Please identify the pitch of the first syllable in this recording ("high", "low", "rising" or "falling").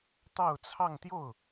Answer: falling